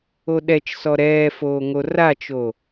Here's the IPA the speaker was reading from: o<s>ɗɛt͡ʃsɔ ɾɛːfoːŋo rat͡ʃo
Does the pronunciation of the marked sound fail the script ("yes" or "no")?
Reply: yes